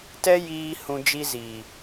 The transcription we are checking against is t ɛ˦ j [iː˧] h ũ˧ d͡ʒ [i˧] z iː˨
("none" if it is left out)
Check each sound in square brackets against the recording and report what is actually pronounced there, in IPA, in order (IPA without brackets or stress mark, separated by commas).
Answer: iː˦, i˧